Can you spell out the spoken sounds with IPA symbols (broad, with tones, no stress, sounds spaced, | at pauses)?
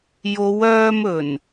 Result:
j o˨˧ w œː˧ m ɵ˨˩ n